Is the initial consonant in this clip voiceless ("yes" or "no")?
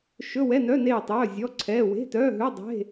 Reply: yes